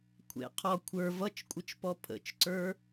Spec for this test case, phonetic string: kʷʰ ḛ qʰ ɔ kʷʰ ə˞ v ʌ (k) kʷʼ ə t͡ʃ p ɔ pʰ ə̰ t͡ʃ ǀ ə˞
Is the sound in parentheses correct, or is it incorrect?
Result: incorrect: t͡ʃ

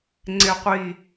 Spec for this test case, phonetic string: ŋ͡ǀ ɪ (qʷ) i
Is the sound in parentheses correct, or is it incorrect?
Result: correct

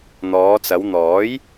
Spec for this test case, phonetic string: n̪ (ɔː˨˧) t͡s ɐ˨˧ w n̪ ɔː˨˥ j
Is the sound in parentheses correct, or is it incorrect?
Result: correct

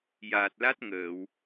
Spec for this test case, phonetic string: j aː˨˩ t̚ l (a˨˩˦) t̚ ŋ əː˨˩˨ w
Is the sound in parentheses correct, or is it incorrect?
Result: incorrect: a˦˥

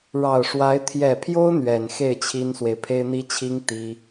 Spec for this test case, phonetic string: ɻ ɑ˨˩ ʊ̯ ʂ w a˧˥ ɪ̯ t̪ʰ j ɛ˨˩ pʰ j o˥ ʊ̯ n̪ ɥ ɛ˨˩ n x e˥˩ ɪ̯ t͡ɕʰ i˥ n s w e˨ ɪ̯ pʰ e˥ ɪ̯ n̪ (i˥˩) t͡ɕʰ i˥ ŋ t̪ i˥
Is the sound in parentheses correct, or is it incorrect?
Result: incorrect: i˥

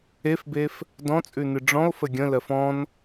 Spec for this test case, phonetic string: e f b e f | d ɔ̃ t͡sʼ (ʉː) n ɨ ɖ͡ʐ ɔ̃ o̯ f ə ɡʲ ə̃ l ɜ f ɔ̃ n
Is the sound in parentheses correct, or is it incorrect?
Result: incorrect: ʉ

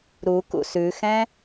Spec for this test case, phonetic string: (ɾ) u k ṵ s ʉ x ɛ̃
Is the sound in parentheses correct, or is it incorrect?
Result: correct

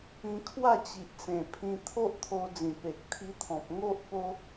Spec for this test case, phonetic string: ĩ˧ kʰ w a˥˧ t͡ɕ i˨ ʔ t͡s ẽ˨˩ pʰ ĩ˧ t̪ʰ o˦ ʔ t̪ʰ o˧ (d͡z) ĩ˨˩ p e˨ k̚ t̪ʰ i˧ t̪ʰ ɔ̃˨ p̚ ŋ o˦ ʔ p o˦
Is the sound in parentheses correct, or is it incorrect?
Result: correct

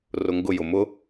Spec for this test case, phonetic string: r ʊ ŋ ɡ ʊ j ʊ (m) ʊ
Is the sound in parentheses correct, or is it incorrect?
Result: correct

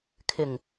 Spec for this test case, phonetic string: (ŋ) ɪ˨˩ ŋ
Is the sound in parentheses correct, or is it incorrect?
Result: incorrect: kʰ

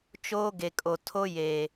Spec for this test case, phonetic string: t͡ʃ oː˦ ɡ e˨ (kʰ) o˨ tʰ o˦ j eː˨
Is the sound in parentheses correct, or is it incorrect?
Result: incorrect: kʼ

